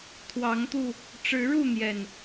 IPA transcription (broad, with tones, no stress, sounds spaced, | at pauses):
t̪ʰ w ɑ˨˦ ŋ t̪ u˧ | ʈ͡ʂ ɻ̩˨˦ ɻ u˥˨ n̪ j ɛ˨˩ n